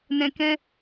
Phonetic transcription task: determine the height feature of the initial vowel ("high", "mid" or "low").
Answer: mid